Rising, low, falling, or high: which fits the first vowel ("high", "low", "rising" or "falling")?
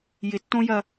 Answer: rising